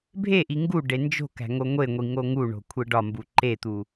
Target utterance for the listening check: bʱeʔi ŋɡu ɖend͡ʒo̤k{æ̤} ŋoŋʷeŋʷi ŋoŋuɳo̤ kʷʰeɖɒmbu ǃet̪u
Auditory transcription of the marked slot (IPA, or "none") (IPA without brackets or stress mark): æ̤